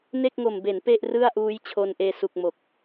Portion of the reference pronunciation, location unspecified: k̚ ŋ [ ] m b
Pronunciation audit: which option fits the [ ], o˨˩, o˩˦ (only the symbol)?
o˨˩